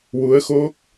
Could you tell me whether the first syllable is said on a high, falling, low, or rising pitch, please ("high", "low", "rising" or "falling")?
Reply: rising